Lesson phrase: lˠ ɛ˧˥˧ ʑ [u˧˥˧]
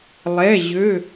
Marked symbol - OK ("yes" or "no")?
no